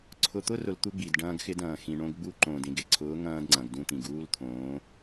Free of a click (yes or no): no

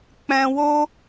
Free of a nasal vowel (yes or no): no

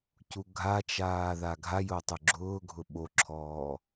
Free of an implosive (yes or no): no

